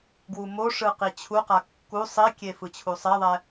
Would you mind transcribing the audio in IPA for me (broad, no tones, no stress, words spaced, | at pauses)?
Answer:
ɡwumoʂɯ qit͡ɕʰuqa kːu sˤikʲe fɯt͡ɕʰusˤeðˤɛ